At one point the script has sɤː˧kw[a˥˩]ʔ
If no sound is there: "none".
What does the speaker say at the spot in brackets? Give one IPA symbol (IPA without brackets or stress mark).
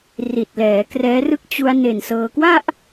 a˥˩